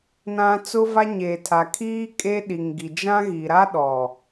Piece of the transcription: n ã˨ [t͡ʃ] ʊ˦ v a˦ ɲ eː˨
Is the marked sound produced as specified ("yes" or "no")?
no